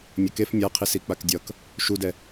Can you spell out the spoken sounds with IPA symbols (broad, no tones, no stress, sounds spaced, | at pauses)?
mʲ ʌ k e f mʲ a qʰ i s i k͡p a k dʲ ʌ k | ʃ u d ɛ